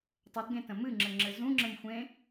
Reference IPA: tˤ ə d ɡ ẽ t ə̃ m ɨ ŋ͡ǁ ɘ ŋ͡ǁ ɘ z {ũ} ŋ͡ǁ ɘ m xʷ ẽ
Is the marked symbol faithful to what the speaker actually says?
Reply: yes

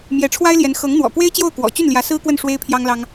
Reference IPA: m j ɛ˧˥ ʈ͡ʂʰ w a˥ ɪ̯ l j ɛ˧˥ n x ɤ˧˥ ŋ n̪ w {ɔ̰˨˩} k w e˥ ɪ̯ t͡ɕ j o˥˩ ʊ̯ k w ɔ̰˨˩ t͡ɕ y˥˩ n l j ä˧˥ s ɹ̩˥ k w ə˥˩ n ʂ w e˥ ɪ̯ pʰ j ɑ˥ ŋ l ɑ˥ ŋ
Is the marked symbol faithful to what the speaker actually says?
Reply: yes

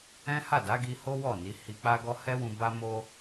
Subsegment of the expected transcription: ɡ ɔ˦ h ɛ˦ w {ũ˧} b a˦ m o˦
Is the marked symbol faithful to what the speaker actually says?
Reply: yes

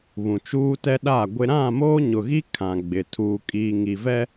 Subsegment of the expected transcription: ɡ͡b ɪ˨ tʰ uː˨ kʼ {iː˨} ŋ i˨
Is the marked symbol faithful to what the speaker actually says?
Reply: yes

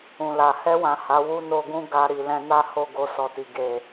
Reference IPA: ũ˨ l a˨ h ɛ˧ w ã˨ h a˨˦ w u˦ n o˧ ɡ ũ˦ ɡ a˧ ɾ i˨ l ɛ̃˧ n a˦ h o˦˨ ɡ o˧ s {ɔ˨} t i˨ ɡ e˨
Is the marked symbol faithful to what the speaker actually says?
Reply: yes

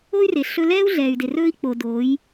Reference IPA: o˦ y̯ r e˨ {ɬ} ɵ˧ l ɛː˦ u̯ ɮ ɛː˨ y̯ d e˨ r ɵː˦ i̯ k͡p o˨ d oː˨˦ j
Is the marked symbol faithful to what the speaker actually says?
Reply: yes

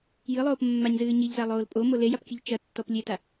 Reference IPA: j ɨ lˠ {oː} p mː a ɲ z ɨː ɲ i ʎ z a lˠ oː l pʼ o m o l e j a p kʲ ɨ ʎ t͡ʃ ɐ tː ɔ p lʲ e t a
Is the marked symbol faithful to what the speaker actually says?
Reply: yes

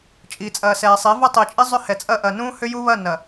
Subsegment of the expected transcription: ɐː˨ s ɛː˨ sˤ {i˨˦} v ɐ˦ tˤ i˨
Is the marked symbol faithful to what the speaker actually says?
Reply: yes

